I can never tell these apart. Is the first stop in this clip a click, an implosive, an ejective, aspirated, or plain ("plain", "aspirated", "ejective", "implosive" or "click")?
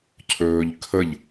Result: aspirated